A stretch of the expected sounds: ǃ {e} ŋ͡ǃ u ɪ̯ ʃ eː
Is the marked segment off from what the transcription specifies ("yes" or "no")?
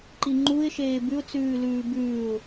yes